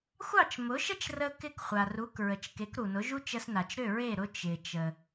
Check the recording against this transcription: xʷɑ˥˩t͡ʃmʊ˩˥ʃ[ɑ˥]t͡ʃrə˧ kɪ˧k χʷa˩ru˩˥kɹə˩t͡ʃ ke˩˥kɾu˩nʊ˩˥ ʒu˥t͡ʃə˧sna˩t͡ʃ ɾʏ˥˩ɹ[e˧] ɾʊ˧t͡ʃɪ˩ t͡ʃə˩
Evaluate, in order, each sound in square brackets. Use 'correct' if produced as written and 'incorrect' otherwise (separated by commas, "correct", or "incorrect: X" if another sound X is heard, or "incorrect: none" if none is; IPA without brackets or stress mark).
incorrect: ə˥, incorrect: e˥˩